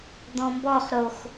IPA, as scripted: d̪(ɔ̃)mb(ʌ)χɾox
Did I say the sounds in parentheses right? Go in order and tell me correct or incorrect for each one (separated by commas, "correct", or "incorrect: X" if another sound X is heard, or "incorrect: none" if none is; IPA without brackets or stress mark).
correct, incorrect: ɔ